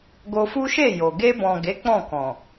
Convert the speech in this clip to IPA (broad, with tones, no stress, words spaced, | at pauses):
ɡo˧fu˦ʃe˦˨ jo˨ ɡe˧bɔ̃˨ɡe˨˦ k͡pɔ̃˦˨kɔ̃˨